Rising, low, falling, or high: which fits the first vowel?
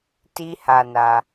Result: high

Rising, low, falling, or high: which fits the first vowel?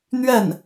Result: falling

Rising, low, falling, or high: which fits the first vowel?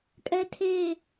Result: high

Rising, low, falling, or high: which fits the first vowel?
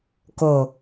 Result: low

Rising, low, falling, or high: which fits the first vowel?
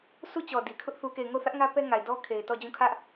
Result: falling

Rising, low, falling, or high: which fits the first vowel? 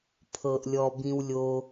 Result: low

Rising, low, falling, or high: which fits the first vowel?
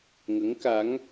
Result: rising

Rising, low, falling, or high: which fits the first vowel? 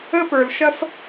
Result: high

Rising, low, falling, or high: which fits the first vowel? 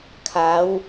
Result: rising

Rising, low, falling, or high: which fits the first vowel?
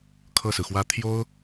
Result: falling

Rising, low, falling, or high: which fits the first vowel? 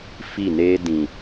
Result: falling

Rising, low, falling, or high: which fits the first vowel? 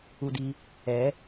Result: low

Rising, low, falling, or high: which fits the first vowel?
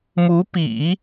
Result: rising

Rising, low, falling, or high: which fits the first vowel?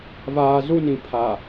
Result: low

